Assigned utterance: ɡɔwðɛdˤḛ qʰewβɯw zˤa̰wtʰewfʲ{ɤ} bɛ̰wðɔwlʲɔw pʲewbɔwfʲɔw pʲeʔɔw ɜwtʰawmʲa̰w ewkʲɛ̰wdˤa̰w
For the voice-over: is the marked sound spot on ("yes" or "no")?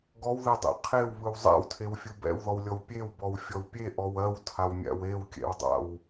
no